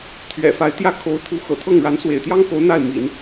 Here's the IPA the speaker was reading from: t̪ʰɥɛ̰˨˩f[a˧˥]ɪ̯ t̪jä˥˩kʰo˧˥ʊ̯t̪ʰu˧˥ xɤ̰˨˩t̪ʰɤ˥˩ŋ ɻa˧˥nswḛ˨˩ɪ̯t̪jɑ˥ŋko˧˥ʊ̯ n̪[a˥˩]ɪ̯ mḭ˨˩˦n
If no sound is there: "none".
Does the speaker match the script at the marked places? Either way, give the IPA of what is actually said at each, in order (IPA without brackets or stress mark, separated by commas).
a˧˥, a˥˩